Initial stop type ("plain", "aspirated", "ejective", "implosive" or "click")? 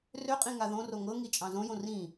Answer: ejective